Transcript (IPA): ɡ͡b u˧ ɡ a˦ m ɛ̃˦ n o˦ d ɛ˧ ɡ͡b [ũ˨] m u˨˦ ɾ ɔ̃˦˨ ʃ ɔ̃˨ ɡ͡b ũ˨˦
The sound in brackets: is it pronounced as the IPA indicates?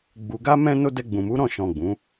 yes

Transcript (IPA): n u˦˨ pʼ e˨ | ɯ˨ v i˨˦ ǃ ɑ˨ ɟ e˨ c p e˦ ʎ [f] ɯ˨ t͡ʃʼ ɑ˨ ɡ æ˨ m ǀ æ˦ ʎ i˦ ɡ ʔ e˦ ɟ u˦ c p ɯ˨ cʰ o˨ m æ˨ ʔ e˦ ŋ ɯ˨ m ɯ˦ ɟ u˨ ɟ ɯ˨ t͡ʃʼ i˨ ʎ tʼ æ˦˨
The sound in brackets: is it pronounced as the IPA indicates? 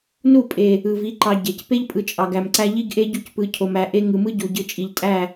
no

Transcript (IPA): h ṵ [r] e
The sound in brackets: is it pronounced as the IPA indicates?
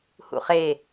no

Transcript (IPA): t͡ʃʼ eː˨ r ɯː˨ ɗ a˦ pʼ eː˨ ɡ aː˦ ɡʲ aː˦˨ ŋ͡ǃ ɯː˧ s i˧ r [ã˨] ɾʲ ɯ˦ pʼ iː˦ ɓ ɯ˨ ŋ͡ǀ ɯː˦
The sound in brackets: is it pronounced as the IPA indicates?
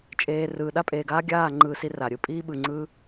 no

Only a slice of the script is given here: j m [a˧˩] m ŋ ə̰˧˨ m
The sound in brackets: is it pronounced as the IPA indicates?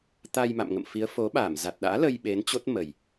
no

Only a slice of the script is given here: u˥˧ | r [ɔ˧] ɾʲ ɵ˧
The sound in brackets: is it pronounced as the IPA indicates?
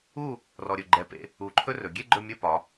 yes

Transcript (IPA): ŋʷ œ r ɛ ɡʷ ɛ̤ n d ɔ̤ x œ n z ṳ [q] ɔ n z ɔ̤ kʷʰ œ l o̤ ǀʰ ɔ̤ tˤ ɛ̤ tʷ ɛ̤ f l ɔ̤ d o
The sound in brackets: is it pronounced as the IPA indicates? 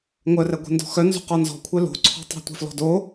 yes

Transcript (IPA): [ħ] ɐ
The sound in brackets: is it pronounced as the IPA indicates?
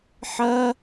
yes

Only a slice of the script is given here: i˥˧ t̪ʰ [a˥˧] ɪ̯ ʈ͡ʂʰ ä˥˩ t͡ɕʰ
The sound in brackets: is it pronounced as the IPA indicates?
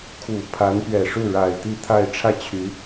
yes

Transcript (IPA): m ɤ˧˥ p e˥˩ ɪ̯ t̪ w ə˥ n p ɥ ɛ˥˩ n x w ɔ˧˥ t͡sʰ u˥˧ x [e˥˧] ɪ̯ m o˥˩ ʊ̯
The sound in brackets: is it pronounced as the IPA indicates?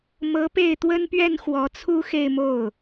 yes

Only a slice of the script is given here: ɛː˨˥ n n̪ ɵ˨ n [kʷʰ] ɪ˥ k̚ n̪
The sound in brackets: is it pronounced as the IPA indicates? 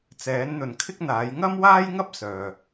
no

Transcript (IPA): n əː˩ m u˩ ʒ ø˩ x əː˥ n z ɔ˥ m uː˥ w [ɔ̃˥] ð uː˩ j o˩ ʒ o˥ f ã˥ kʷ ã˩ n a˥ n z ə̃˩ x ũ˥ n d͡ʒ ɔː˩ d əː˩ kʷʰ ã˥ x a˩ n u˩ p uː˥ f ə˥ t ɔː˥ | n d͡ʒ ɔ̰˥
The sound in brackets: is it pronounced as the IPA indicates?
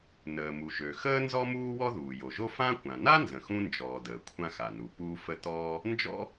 no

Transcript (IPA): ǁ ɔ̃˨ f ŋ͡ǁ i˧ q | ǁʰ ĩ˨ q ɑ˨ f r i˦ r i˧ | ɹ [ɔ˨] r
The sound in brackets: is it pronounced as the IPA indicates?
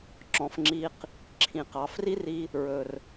no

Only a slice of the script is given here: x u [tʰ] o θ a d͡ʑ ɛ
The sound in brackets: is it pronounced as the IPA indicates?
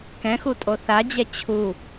no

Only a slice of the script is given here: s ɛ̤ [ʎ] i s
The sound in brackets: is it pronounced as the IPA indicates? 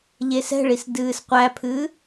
no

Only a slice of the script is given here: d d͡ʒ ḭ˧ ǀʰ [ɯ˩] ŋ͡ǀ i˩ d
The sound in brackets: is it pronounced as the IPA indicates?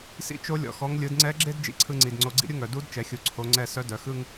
no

